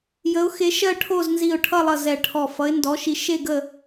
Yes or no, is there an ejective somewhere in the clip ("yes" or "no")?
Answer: no